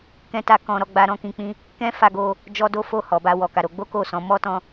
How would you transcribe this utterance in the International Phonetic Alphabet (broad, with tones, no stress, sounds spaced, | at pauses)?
k ɛ̃˦ t a˦ k ɔ̃˦ ɾ ɔ˦ ɡ͡b a˦ ɾ ɔ̃˦ k ĩ˧ k͡p ĩ˦ | k ɛ̃˦ f a˧ ɡ o˧ | d͡ʒ ɔ˦ d o˦ f o˦˨ h ɔ˨ b a˧ w ɔ˨ k a˨ ɾ o˧ ɡ͡b o˦ k o˦˨ s ɔ̃˨˦ m ɔ˦ t ɔ̃˧